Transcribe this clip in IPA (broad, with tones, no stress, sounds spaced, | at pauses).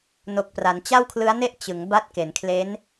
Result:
n o˨˩ k̚ p r a˩˦ n t͡ɕ a˥˩ w kʰ l ɯ˦˥ a̯ n e˥˩ ʔ t͡ɕ ɯ˩˦ ŋ b a˦˥ t̚ k e˩˦ n kʰ l e˦˥ n